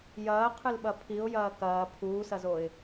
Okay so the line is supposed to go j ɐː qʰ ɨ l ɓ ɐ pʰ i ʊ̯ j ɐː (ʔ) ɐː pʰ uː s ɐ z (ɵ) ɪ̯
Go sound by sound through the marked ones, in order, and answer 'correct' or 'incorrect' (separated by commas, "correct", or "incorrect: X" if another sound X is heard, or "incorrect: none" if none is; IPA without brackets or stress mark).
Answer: incorrect: k, incorrect: o